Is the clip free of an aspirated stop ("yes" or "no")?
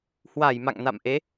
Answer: yes